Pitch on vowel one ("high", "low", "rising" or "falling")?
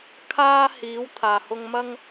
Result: high